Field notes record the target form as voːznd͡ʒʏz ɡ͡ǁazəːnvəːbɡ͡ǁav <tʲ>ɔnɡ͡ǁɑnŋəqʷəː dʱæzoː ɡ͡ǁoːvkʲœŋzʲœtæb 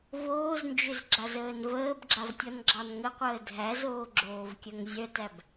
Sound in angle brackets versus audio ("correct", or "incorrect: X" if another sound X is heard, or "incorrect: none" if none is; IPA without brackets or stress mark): correct